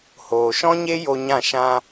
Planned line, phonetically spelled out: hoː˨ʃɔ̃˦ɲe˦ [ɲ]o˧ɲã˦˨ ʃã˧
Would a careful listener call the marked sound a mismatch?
yes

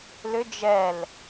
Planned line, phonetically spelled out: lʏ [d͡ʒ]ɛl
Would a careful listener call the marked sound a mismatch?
no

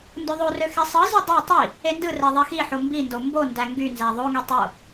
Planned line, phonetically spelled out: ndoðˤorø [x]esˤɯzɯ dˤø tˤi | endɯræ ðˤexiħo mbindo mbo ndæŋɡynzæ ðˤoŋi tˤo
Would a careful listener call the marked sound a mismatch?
no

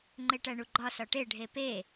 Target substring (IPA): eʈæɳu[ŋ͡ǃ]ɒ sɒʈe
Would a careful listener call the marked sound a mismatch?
yes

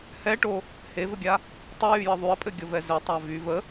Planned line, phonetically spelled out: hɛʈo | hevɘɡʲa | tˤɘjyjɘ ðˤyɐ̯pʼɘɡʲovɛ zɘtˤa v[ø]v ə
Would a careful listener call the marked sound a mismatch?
yes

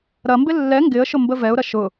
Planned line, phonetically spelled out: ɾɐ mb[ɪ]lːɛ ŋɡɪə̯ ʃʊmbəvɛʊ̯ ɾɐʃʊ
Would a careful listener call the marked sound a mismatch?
no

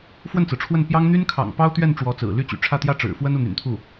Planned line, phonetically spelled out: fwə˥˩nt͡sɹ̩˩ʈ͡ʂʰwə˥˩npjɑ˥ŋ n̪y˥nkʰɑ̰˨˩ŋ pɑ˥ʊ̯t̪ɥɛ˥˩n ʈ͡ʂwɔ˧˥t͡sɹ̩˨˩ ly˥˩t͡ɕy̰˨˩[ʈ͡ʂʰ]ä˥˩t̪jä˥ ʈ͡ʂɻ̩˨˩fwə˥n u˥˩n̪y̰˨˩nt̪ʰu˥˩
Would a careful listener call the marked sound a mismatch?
no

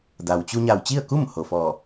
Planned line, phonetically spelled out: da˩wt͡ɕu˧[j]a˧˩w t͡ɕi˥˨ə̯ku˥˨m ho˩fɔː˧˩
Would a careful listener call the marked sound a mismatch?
yes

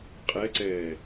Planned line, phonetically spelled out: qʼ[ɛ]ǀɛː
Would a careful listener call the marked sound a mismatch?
no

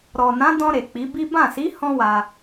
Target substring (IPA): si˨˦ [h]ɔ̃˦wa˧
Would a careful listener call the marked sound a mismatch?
no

